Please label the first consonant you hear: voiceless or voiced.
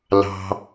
voiced